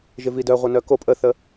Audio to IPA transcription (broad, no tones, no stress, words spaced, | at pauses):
ʒɪvidœ ʁʷœnœko pʼəθə